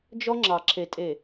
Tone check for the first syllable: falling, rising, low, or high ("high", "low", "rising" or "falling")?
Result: high